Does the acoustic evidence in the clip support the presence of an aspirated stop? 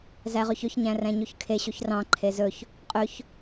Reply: yes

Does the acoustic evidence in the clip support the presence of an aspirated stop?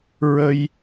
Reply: no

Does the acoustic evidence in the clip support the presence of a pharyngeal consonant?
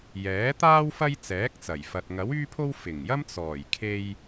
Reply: no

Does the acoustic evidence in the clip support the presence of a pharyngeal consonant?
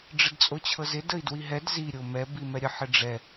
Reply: yes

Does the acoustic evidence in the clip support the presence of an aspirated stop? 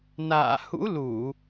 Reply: no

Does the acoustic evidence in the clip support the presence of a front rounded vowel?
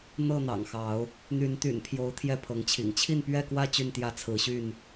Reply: yes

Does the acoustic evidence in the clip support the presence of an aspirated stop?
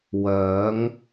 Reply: no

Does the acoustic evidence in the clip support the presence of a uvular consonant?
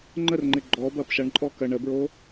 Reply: no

